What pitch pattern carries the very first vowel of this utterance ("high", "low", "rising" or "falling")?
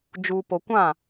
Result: low